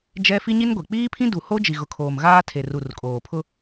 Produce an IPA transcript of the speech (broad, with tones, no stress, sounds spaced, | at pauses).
d͡ʒ ɛ˦ f i˦ ɲ i˦ n ɡʷ e˨ k͡p iː˦ pʰ ĩ˦ d u˨ h o˦ d͡ʒ i˨ ɣ ʊ˨ kʰ oː˨ m ɣ aː˦ tʰ e˨ r u˨ r kʼ oː˨ pʰ ʊ˦